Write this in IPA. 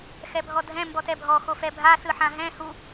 x ɛ bʱ ɔ dʱ ɛ̃ m b ɔ t ɛ bʱ ɔ x o f ɛ bʱ a s ɯ ħ ã ɦ ɛ̃ h u

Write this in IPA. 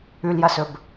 ʉ l j ɐ s ɵ b

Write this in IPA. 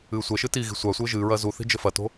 ɨː sʷ ɛ ʃ ɨ t i ɣ i̤ sʷ a sʷ ɘː ʒ ɨː ɹ ɐː z u θ i̤ d͡ʒ ɘ f ɐ t o̤

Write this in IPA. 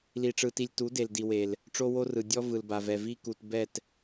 l i˧ ʈ͡ʂ ɯ˧ t i˧ lʲ t u˨˦ d e˨ l d i˨ w e˨ l | ʈ͡ʂ o˦ w o˦ r ɯ˨ dʲ ɔ˧ v ɯ˨ l b a˨ v ɛ˨ v i˧ k u˨ t b ɛ˦˨ t

